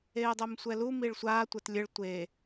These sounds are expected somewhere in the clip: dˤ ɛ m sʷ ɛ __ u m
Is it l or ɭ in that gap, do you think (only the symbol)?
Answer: l